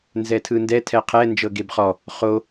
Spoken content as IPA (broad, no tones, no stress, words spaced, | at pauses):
nzɛtʰɯndɛ tʰɛqʰɛ nd͡ʒɤɡebχɔ | χo